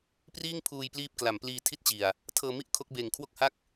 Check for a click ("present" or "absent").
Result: absent